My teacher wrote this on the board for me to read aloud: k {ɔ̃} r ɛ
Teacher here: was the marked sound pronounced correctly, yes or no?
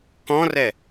yes